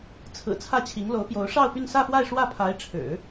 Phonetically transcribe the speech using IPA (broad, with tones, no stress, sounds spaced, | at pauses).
t͡sʰ ɹ̩˨˩ t͡sʰ ä˥˩ t͡ɕʰ i˧˥ ŋ l o˧˥ ʊ̯ p j o˧˥ ʊ̯ ʂ ɑ˥˧ ʊ̯ p y˥˧ n s ä˥˧ f w a˥˧ ɪ̯ ʂ w ä˥˩ pʰ a˧˥ ɪ̯ ʈ͡ʂʰ ɻ̩˨˩˦